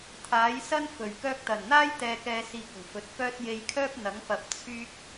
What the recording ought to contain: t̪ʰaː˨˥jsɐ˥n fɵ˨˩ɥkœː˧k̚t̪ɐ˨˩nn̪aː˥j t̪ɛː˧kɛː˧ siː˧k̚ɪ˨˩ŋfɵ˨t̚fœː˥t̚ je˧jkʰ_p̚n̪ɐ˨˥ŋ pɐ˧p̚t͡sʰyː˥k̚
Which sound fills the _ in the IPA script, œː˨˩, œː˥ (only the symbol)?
œː˥